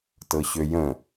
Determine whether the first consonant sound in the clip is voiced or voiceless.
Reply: voiceless